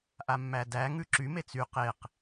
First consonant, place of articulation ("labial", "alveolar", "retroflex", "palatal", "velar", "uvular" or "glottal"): glottal